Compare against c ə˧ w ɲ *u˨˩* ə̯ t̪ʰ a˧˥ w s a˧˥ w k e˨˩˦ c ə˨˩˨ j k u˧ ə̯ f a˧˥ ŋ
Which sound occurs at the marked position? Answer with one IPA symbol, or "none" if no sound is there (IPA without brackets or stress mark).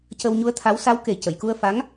u˧˥